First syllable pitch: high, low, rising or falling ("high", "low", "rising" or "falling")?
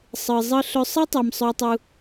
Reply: low